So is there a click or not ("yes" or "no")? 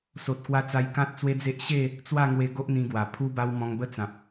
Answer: no